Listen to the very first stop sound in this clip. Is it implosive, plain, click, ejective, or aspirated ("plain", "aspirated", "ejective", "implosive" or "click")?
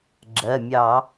click